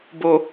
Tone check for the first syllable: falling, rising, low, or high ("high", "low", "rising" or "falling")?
low